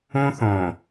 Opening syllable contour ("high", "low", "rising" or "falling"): high